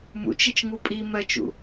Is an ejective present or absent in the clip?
present